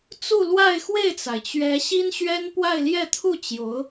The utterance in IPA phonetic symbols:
t͡su˥˧lwa˥˧ɪ̯xwe˥˩ɪ̯t͡sa˩ɪ̯ t͡ɕɥɛ˧˥ ɕi˥nɕɥɛ˥npwa˥˧ɪ̯ljɛ˥˧ t̪ʰu˥˩t͡ɕjo˧˥ʊ̯

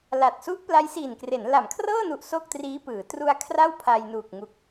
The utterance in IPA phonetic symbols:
la˨˩t̚su˦˥ʔ pla˦˥jsiː˨˩nkre˩˦n la˩˦mkʰrɤː˥˩nu˨˩ʔ so˥˩k̚triː˦˥pɯː˩˦ tru˧a̯ kʰra˥˩wpʰa˧jnuː˨˩k̚ŋu˨˩k̚

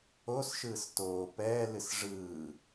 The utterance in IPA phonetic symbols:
osʃɯːs toː pɛːlɨs ʐɯː

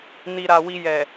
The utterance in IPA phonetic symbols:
ni˨ɾa˨ wi˧jɛ˨

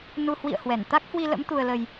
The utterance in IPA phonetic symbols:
nu˧ hwḭ˧˨ə̯ hwɛ˧˩n t̪a˦˥k̚hwi˧lə̰˧˥m t̪u˧ə̯lə˧j

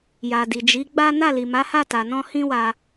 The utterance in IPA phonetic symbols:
ja˨di˨d͡ʒi˨˦ɡ͡ba˦ na˦˨li˨ma˨˦ha˦˨ ta˨nɔ̃˧ hĩ˦wa˧

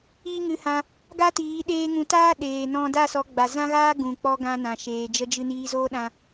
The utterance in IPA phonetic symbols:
iː˦ŋɨ˧ hã˧ | ɡa˦tiː˨˦ ɗeː˧ŋũ˨˦taː˦ ɗeː˨ nɔ̃˧ da˦˨sɔ˨˦ɡ͡ba˨ zã˦ɣaː˦ ɡũ˨k͡pɔ˧ ɡã˧nã˨ ʃeː˨ d͡ʒə˧d͡ʒɨ˧ niː˧zoː˦ɗã˧

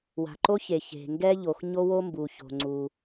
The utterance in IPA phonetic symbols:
wa̤˩ǃo˥çe˩ çe̤˩ŋɡɛ˥ʎo˩x ɲo˥wo˥mbu˩ ço̤˩ŋ͡ǀu˩

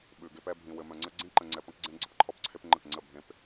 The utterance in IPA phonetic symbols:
ɓʉ˨ɡe˦pɛ˦ bʱĩ˨wɘ˨mœ̃˨ŋ͡ǀə˦ ɡ͡ǀĩ˦ǃə̃˨ŋ͡ǀɛ˨ pə̃˦kɡ͡ǀẽ˦ ɡ͡ǀə˦pǃʰɔ˦pǀʰe˦pŋ͡ǃə˦˨k ŋ͡ǀə˦˨ bʱẽ˦p

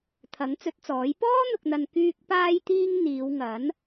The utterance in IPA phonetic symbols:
t̪ʰɐ˨˥ŋt͡sɵ˨˥t̚t͡sɔː˨˥j pɔː˥n̪ʊ˨k̚n̪ɐ˨n kyː˧k̚ paː˧jt̪iː˧ŋ n̪iː˨˧wŋɐ˨˥n

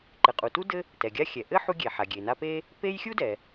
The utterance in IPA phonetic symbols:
ǃɘ˩qʼu˩tu˥ dɘ˥ | tɛ˩ɡʲa˦xʲɛ˩ ʔɘ˥ ħu˦ɡʲe˩ ħa˩ɡʲe˩na˦pe˥ | pe˦jxʲu˥dɛ˩

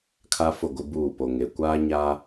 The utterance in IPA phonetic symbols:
kʰa˦fʊ˦˨ɡʷɪ˦buː˦˨ po˨ŋe˨ kʷaː˦ɲa˦

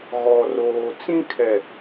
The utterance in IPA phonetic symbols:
ɣɔ˨roː˨ t͡sĩ˦kʰɛ˨

